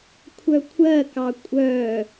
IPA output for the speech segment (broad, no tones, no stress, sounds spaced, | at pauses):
kʷʰ œ kʷʰ ɜ k ɑ kʷʼ œ